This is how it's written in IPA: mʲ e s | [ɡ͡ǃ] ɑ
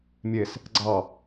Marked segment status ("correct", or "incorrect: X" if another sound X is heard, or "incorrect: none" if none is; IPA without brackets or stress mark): incorrect: ɡ͡ǀ